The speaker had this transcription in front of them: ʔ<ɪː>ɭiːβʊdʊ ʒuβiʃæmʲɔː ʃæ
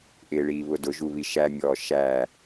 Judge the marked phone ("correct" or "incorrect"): correct